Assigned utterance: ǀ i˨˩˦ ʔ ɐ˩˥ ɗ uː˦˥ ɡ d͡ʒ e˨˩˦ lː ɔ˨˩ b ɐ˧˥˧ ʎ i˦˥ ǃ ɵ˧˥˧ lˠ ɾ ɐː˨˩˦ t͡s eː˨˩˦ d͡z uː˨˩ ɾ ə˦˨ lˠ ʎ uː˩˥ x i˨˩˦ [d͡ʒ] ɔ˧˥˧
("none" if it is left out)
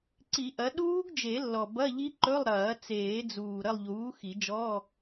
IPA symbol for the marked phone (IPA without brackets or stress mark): d͡ʒ